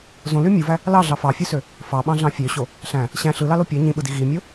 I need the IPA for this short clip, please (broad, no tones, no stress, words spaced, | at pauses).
zõly mʲuvæ | lɑɮɑ fɑfʲusø | fɑɓɑ̃ɮɑ̃ fʲøɕo | ɬæ̃ | ɕæ̃ ɬɯlɑlo pʲæ ɲĩɓɯdi ɣimʲo